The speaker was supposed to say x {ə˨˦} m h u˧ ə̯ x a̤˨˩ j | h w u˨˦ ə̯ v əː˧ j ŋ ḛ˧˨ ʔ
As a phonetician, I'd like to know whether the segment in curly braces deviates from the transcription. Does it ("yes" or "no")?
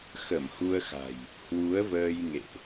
yes